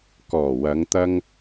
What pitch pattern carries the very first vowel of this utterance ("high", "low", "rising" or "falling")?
low